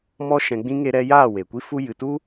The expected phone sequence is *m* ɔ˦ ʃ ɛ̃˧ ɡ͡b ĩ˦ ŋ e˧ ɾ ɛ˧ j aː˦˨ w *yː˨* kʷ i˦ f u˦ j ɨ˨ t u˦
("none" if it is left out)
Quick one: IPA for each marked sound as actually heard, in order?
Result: m, eː˨

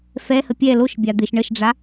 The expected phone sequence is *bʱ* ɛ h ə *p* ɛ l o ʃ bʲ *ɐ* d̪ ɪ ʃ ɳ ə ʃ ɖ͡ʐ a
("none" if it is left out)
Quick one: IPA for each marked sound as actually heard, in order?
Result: f, pʲ, a

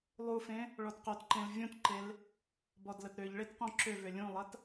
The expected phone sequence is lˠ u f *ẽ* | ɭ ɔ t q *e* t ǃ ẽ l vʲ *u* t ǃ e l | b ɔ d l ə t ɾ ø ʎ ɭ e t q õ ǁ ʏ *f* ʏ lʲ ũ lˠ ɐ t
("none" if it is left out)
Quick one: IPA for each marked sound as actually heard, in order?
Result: ẽ, ø, ũ, v

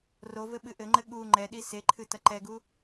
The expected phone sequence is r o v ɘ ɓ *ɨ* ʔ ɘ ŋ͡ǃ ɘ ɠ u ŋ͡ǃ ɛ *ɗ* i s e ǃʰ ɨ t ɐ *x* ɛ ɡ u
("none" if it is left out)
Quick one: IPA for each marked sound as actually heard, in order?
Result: ɨ, ɗ, ǃ

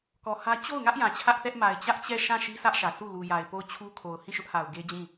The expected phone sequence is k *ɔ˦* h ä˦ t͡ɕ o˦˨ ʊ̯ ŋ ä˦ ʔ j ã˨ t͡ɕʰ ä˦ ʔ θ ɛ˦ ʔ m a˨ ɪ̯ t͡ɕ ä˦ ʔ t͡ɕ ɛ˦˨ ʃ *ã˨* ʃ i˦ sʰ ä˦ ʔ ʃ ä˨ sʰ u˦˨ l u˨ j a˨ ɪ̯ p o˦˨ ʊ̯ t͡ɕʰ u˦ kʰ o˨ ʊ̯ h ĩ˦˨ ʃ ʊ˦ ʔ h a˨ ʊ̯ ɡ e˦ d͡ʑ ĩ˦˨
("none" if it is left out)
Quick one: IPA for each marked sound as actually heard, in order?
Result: ɔ˨, ã˦˨

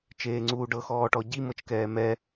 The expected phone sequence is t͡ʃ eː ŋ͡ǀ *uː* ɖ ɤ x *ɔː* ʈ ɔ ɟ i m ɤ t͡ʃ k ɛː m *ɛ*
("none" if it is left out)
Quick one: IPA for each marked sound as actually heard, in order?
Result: uː, ɔː, ɛ

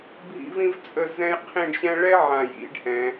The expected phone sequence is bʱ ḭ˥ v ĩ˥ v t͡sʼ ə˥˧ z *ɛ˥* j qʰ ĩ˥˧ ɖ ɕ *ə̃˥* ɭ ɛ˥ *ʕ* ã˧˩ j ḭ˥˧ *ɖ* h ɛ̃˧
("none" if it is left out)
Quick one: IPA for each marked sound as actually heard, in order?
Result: ɛ̃˥, ɛ̃˥, ʕ, ɖ

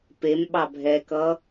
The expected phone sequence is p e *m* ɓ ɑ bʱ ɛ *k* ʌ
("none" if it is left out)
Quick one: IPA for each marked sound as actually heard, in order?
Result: m, k

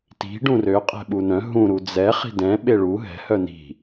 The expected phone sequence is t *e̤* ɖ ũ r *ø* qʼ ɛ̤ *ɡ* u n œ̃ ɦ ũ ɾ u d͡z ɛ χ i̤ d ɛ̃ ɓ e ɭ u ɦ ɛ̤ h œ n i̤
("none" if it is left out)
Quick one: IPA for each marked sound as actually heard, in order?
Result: i̤, ø, ɓ

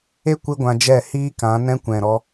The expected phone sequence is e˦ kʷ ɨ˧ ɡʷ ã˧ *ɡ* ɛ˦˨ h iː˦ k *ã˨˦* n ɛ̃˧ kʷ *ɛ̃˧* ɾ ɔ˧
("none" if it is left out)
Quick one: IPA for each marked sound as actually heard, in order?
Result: d͡ʒ, ã˨˦, ɛ̃˨

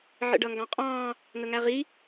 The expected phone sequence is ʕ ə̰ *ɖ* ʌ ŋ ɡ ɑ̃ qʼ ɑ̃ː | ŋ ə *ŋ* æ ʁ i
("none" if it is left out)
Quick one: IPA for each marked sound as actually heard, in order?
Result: ɖ, ŋ

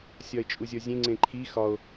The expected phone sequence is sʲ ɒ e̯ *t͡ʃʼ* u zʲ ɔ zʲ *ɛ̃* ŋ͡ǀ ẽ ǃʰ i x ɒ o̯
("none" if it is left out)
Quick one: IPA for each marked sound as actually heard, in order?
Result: t͡ʃʼ, ẽ

